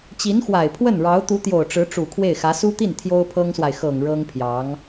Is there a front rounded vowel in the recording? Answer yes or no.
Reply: no